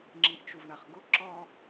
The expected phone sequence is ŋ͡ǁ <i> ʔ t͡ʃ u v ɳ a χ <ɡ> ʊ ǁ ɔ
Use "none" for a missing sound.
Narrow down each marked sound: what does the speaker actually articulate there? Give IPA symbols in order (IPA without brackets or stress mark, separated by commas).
i, ɡ